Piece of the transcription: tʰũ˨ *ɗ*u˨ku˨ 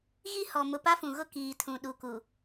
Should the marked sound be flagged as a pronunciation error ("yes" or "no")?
no